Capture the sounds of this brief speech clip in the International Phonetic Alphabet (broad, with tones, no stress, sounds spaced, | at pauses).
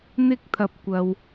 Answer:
n̪ ɪ˥ k̚ t̪ʰ ɐ˧ p̚ kʷ ɐ˧ w